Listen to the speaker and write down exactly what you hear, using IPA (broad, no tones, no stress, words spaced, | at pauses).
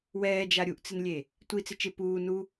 wɛːd͡ʒa ɾʲuʔt͡sɪnlʲe | tʷit͡sɪ t͡ʃɪ puː nu